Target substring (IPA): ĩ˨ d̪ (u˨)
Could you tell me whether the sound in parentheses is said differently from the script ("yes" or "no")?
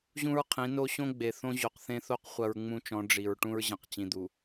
no